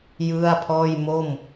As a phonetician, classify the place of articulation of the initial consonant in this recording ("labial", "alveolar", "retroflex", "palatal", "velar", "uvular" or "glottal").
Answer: palatal